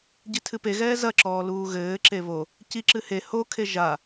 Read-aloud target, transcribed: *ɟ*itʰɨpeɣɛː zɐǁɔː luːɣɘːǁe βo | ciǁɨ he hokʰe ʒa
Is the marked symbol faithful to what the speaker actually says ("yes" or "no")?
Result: yes